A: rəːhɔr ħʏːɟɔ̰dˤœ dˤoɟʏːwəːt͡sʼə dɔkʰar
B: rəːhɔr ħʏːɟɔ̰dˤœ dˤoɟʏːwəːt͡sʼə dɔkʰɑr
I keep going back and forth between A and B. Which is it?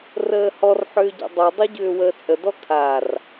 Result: A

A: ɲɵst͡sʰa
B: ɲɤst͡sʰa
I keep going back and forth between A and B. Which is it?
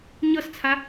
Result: B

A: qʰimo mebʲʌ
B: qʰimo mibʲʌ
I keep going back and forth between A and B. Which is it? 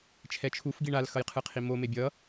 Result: A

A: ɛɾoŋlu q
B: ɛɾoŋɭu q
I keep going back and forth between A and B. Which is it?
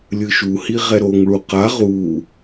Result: B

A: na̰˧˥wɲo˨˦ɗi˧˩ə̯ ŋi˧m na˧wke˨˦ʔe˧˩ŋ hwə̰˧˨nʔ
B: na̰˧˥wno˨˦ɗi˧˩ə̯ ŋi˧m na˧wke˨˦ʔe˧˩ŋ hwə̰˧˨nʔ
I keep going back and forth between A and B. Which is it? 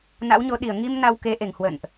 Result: A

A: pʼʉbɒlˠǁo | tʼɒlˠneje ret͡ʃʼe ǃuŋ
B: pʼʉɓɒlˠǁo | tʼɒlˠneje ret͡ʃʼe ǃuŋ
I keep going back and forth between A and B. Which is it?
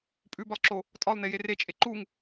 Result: A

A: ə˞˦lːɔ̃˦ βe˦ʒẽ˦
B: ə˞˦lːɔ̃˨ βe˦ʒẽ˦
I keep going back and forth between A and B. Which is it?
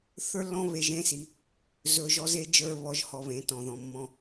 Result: A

